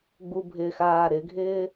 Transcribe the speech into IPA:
ɡ͡b u bʱ ɪː x aː ɾ ɪ ɡʱ ɪː

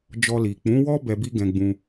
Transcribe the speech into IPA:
d͡ʒ ɔ˧ l i˨ k͡p ũ˨˦ w ɔ˦ b ɛ˧ b i˦ ɡ ɛ̃˧ ɡ͡b ũ˧

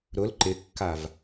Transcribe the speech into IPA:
ɾ ʊ l ǃ ɪ kː a v

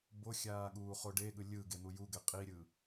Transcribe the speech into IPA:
b o xʲ aː ɠ uː χ o ɖ e ɠ ɯ lʲ ɯ ɡ e n̪ u j u ɡ ɛ qʼ i ɾʲ ɯ

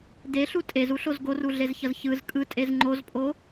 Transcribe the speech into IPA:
d e ɬ u tʼ e z u ɬ o z ɡ o r u ɮ e z ç ʌ z ç ɯ z kʼ ɯ tʼ e z ŋ͡ǃ o z pʼ o

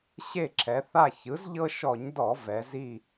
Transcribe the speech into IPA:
ɕ e˦˨ ǁʰ ɛ˩˧ θ a˦˨ ç ɯ˩˥ z ʎ ɤ˦ ʃ ɔ˧˩˧ ɲ d ɔ˧˩˧ v ɛ˩˧ z i˦˨

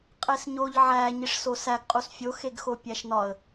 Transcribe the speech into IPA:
qʼ e s ɲ o ʎ ʕ æ ɲ i ʂ s o s æ ɡ qʼ u s fʲ o x e ɡ x o pʲ æ ʃ n ɒ ə̯

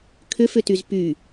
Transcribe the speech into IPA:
kʰ ʏ f ʏ t y z p y

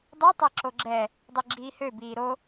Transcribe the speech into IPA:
dˤ i tˤ ɛ ǁ o ɡ͡ǁ ɛ | dˤ i ɡ͡ǁ iː h ø b iː ɾ o

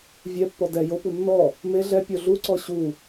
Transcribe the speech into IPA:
vʲ ɛ pː ɔ d ɛ j o p u nː ɔ | m e ɮ ɛ pʲ o ɮ u ǀ ɔ ɕ u

